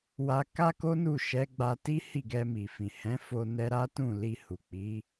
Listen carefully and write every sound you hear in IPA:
w a˧ k a˦ k o˦ n u˦˨ ʃ ɛ˨˦ ɡ͡b a˧ t i˦ h i˦˨ ɡ ɛ˧ m i˨ f ĩ˨ h ɛ̃˨˦ f o˧ n ɛ˧ ɾ a˦ t ũ˦˨ l i˧ h u˨ k͡p i˨˦

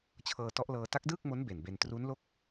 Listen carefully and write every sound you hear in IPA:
t͡ɕʰ ɤː˧ t ɔ˦˥ ʔ l ɤː˧ t a˦˥ k̚ d ɯː˥˩ k̚ m o˦˥ n b e˨˩ n b e˧ n t r u˦˥ n l o˥˩ k̚

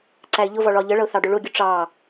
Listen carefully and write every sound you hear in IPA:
ǀ æ ɪ̯ ʎ ʊ v ɒ ɭ ɒ ʎ ə ɭ ʌ ʊ̯ θ ɑ ɖ ʊ ɭ ʊ ɡʲ ʊ ʈ͡ʂ ɑ

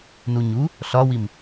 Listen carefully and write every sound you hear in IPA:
n u ɲ u | ɬ ɒ w i m

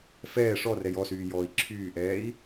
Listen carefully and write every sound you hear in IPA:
f ɛː ʂ ɔ r ɛ j ɔ s yː j ɔː i̯ ǁʰ yː ʔ ɛː i̯

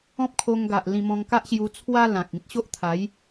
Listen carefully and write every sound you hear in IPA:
ɔ̃˦ p̚ kʰ o˧ ŋ ɡ a˨ ʔ l ĩ˧ m ɔ̃˧ ŋ k a˦ ʔ ɕ j u˧ t͡sʰ w a˦ l ã˨ k̚ ĩ˦ t̚ ɕ o˦ ʔ t̪ʰ a˨˦ j

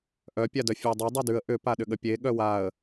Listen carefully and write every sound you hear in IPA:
ʔ œ pʲ a d œ fʲ œ dˤ e dˤ a d ʉ ə̯ ʔ ʏ p a ɗ ʏ ɠ ə pʲ e ɠ œ w a ə̯

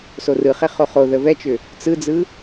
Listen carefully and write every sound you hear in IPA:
s o r ɯ χ e χ o χ o ð ə v ɛ t͡ʃ ʏ | t͡s ɯ d͡z ɯ

